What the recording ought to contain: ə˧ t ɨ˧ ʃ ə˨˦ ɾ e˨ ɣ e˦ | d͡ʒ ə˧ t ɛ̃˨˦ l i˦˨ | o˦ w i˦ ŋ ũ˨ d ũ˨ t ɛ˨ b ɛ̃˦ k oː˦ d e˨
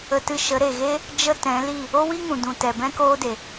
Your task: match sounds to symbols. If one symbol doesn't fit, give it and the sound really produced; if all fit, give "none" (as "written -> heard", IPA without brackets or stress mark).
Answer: none